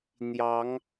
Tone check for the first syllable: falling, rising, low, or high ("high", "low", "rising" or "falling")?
rising